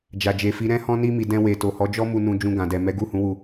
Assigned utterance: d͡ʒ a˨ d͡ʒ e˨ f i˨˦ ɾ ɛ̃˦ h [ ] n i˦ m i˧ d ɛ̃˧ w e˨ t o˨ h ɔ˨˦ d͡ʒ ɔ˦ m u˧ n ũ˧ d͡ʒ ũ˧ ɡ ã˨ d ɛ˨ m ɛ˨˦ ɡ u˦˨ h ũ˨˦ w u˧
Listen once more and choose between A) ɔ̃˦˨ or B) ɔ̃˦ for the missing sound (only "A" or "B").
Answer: B